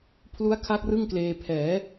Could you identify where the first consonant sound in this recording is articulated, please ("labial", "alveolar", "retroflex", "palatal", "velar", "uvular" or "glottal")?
labial